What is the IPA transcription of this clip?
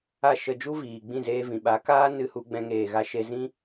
a˦˨ ʃ ə˧ d͡ʒ u˦ v iː˨ ɡ͡b ĩ˦˨ z eː˧ v ĩ˨ ɓ a˨˦ k aː˦ n ɨ˧ h u˧ ɡ͡b ɛ̃˧ ŋ eː˨ ɣ a˧ ʃ e˧ z ĩ˦

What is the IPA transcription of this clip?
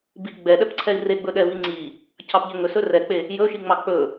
b i ɡ͡b ɛ ɗ ɛ p ǀʰ ɛ i̯ r e ɡ͡b ɵ ɗ ɛ v i ŋ͡ǀ i | cʰ ɑ p ʎ ɛ ŋ ɵ s ɵ r ɛ k͡p e | j ɵ ʃ i ŋ͡m ɑ k͡p ɵ

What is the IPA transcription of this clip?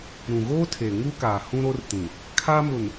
ɾ ũ˨ ɣ oː˦ tʰ e˨ ŋ u˦ k aː˨ h ũ˦ ɾ o˦ r t ĩ˨ | kʰ a˦ m ʊ˨ n

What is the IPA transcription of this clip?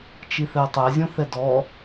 t͡ʃ i θ ɛ tˤ ɛ zʲ õ θ ɛ d ɔ

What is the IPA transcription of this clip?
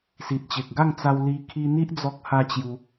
s i˨ t̚ t͡ɕ e˨ k̚ ɡ a˥˧ ŋ t͡s a˧ w l i˧ kʰ i˧ n̪ i˦ ʔ d͡z ɔ˦ k̚ h a˦ t͡ɕ j u˧

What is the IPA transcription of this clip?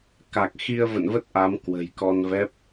k a˨˩ k̚ x i˧ ə̯ v ə̰˧˨ n v ə˦˥ t̚ ʔ a˨˦ m k w ə̤˨˩ j k ɔ˧ n v ɛ˦˥ p̚

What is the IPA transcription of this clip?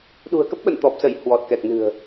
ɗ ṳ˨˩ ə̯ k ə˦˥ p̚ ɓ ə̰˧˨ n t̪ ɔ˨˩ p̚ s ə˧˩ j h w ɔ˨˩ t̚ k ɛ˨˩ k̚ n ɨ̤˨˩ ə̯

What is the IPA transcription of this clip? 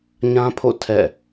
ɲ ã˦ pʰ o̰˦˨ tʰ ɛ̰˦˨

